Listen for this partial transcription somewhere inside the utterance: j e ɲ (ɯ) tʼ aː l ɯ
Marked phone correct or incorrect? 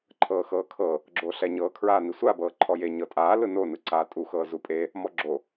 incorrect